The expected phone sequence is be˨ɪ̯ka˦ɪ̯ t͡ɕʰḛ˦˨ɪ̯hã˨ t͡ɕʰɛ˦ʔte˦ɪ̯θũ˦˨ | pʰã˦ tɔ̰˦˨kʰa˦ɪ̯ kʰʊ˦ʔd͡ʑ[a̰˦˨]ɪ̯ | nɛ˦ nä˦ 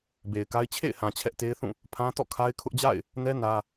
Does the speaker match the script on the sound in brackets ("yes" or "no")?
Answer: yes